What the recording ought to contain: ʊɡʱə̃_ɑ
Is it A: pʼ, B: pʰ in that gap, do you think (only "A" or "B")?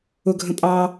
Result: A